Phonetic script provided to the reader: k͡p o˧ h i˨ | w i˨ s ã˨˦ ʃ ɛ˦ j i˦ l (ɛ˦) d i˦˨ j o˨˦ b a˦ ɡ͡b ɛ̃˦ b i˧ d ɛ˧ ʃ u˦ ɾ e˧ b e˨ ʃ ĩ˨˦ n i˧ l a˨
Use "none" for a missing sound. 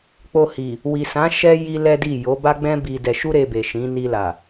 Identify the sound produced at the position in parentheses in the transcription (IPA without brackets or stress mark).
ɛ˦